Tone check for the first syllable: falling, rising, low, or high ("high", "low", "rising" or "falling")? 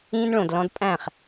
high